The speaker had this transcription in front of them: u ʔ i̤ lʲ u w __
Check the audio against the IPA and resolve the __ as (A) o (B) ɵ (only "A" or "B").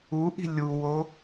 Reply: A